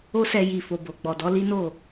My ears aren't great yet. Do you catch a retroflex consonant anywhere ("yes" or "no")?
no